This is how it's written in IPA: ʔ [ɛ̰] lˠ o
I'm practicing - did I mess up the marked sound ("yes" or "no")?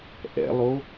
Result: no